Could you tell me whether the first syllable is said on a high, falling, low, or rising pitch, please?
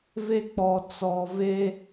high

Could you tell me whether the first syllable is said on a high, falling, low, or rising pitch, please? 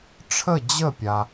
falling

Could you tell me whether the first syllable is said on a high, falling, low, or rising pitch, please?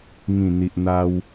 low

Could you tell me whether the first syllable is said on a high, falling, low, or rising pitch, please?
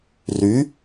rising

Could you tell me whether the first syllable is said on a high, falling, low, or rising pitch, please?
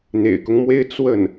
low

